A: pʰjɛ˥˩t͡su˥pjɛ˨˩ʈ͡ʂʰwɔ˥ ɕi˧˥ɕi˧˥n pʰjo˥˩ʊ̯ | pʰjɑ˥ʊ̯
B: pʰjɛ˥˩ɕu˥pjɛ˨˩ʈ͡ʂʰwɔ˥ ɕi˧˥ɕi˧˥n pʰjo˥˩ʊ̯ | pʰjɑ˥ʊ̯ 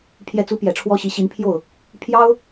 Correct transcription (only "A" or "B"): A